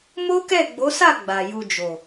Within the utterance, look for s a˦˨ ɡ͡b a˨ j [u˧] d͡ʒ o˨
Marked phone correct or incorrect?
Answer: correct